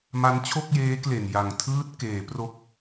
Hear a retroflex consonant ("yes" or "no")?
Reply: no